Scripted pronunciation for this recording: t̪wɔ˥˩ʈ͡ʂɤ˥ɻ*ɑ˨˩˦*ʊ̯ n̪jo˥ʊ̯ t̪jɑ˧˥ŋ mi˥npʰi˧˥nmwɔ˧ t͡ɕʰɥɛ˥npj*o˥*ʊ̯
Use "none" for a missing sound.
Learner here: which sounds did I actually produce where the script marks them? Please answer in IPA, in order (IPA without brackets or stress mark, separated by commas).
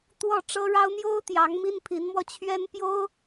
ɑ˥, o˥